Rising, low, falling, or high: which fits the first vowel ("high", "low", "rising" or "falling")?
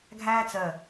high